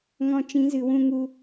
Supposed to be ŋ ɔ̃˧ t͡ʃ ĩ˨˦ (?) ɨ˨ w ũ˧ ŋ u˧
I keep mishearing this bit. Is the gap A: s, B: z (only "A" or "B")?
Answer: B